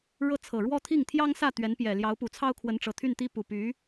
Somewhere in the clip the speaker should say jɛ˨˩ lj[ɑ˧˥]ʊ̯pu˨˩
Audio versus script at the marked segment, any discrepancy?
no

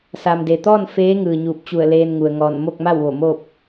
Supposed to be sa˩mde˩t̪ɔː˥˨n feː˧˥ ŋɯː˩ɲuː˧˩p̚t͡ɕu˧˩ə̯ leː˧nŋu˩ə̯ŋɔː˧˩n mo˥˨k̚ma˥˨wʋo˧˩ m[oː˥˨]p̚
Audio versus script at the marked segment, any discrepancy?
no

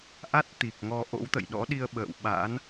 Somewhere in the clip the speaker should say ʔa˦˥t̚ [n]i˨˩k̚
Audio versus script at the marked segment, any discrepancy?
yes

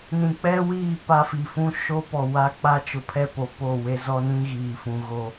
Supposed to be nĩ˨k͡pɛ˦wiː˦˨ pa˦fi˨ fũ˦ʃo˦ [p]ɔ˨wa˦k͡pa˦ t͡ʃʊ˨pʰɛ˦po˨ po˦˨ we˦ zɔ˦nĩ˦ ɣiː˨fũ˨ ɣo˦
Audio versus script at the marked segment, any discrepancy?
no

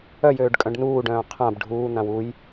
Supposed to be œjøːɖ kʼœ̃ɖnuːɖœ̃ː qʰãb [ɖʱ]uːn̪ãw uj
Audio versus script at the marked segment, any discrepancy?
no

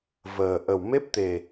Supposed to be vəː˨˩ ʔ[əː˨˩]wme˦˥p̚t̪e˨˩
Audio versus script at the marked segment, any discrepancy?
yes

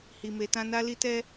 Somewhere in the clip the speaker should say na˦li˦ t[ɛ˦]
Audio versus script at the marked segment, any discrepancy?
no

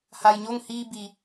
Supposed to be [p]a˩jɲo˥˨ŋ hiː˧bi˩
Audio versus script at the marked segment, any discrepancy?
yes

